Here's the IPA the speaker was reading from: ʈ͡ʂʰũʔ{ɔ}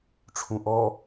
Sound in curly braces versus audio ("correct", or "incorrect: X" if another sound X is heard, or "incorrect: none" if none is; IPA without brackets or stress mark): correct